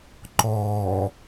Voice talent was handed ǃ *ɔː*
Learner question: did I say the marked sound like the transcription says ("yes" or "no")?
yes